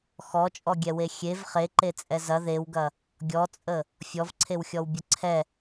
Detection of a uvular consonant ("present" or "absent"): present